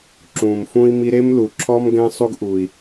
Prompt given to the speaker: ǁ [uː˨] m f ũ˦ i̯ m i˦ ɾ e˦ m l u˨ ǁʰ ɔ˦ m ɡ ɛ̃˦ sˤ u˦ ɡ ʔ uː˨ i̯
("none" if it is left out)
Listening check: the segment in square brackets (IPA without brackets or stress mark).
ũː˨